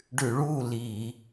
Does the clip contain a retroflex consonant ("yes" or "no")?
yes